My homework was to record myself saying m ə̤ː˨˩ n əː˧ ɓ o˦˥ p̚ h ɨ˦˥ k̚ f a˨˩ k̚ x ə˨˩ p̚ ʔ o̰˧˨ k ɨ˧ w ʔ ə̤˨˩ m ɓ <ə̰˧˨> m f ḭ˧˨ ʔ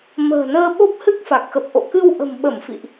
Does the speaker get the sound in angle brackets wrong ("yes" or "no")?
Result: yes